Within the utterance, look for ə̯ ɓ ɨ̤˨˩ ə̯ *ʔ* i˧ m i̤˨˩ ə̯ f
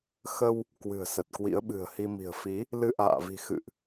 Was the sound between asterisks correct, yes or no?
no